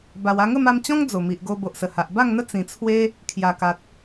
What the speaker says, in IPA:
b a˨˩ w a˧ ŋ ə˥˧ m a˧ m t͡ɕ ɔ̃˦ ŋ d͡z o˨˩ m i˨ ʔ ɡ o˧ b o˨ ʔ s ə˨˩ h a˨ ʔ b a˥˧ ŋ n̪ ə˦ t͡s ĩ˨˩ t͡sʰ w e˦ | kʰ j a˨˩ k a˨ t̚

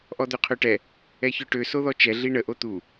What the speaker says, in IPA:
ʔ ɔ d̪ ø qʰ ø ʈ ɛ | ɛ ç œ ʈ ø s o ð ɔ t͡ʃ ɛ ɮ i ɳ ə ʔ o t̪ u

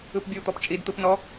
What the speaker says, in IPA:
ɯ p bʲ u t̪ ɔ p t͡ʃʼ i d t̪ ɯ p n ɔ

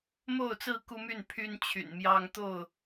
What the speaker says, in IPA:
m o˥˨ ʊ̯ t͡s ɹ̩˥˨ k u˦ m y˥˨ n pʰ y˦ n t͡ɕʰ y̰˨˩ n m j ɑ˦ ŋ t̪ o˥˨ ʊ̯

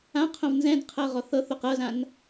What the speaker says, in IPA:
ã qʰ õ v n z ɛ̃ d qʰ ɤ ʁ ɔ θ ɤ θ o q ɤ z ã n

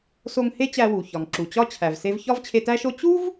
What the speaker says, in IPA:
s o˧ ŋ h e˥ t͡ɕ æ˧ w u˩ ç ɒ˩ ŋ ǁ u˩ t͡ɕ ɒ˥ t͡ɕʰ æ˩ v s e˧ v ç ɒ˥ v t͡ɕʰ e˧ t æ˥ ʃ o˥ t͡ɕ u˥ v

